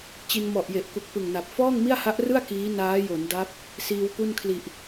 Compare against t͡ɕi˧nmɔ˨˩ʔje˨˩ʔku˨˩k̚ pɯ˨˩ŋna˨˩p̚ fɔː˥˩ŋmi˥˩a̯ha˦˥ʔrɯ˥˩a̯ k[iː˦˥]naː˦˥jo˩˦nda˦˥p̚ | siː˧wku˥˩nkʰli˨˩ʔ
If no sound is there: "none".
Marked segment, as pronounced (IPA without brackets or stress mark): iː˦˥